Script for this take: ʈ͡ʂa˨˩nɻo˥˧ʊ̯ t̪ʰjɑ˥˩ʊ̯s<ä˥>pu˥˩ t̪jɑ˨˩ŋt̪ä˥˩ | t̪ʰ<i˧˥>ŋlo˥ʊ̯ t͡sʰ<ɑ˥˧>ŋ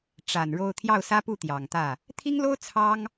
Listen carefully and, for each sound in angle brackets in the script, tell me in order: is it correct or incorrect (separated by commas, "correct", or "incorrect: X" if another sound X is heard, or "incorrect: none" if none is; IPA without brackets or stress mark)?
correct, incorrect: i˥, incorrect: ɑ˥